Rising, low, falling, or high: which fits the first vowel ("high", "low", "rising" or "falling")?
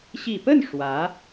low